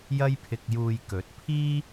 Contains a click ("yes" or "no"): no